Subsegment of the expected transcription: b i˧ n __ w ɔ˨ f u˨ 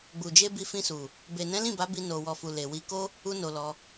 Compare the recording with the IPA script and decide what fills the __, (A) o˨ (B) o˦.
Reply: A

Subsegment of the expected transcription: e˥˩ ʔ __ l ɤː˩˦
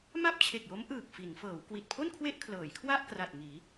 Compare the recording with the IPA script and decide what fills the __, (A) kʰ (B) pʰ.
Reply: A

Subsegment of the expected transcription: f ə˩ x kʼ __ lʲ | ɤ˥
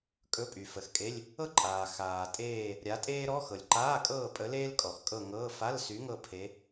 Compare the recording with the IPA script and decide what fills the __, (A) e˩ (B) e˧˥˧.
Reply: B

